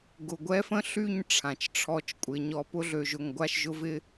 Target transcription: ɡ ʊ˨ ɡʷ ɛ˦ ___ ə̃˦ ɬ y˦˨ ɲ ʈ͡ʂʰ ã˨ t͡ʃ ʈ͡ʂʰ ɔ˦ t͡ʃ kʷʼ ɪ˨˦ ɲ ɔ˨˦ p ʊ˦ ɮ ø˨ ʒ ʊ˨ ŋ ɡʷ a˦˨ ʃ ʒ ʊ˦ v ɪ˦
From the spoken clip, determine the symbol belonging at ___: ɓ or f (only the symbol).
f